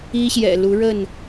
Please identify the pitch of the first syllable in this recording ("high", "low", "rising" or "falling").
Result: high